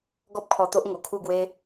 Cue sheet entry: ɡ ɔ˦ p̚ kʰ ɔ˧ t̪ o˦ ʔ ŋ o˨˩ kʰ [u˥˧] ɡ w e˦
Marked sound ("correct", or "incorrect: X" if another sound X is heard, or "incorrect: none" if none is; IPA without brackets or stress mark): correct